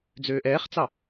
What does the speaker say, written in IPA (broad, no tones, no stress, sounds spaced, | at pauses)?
d͡z øː ʔ ɛː χ t͡s ɑ